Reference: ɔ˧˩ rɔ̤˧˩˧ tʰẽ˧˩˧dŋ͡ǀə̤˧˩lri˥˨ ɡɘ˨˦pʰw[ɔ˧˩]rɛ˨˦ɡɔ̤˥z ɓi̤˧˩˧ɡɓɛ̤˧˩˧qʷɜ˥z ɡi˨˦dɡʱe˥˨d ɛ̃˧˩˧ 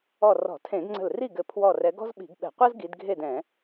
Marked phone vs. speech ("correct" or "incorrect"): correct